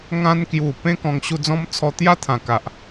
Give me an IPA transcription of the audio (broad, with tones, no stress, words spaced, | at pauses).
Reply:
ŋã˧nkju˨˩ pẽ˦kɔ̃˧ŋɕu˧d͡zɔ̃˦m t͡sʰɔ˧t̪ja˦t̪ʰã˨˩ ka˨ʔ